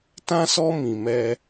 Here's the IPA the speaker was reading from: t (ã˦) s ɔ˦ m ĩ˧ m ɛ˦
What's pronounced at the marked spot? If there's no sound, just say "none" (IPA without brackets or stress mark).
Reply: ã˦